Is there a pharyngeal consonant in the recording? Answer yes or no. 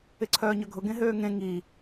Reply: no